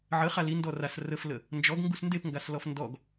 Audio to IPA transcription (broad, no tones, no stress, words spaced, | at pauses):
ʕəχa li ndɔras rəflə | nd͡ʒɔɡ ŋɡusndepŋɡas lɔfndɔɡ